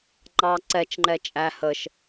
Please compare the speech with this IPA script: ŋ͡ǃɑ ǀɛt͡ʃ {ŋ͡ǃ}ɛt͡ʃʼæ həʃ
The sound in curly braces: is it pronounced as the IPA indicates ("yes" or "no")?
yes